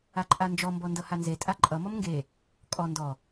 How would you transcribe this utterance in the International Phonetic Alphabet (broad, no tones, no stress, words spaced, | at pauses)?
aǃʼand͡ʒɔ mbɔndʌhanze tʼaǃʼʌ mɔmŋɡe | kʼɔ ndɔ